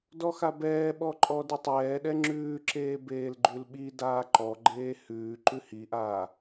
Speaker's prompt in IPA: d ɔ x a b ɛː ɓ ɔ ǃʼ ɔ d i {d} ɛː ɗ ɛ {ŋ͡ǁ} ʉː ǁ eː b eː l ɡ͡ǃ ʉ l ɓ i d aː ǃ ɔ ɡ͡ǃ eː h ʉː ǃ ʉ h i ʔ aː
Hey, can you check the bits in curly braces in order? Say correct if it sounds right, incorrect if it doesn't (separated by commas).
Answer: incorrect, correct